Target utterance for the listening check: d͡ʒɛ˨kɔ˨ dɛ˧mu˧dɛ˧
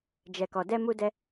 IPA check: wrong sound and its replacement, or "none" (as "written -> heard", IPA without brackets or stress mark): none